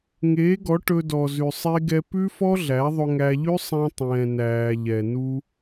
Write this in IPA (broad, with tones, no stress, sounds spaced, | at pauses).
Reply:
ŋ eː˨˦ ɡ ɔ˨˦ ʈ ɵ˧ d ɔ˨ z ʉ˨ sˤ e˧ ɡ ɛ˧ p ʉ˦ f ɔ˦ ɮ æ˨˦ ðˤ ɵ˧ ŋ æ˧ ʎ ʉ˦ sˤ ɛ̃˧ tˤ ɛ̃ː˨ n æː˨ ʎ ɛ˨ n u˧